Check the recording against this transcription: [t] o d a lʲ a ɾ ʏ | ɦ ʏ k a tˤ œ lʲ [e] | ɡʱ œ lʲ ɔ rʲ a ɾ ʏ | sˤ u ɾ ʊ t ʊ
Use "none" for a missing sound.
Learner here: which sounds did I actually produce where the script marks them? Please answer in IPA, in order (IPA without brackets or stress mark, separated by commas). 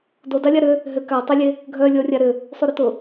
d, e